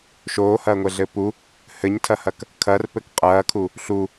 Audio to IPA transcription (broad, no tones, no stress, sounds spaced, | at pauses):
ʃ oː h ɐː ŋʷ ɛ ɮ ɘ p u | h ɘ ɲ tʰ ɐ h ɐ k | kʰ ɐ r p ɘ k qʼ ɐː kʰ u | ɬ u